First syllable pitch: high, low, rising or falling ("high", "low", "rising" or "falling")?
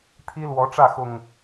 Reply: high